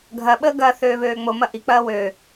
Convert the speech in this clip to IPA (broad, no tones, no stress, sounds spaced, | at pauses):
ɡʱ ɐ ɓ əː ɡ ɐː θ øː β øː ŋ͡m o m ɐ ʔ i k͡p ɐː w ø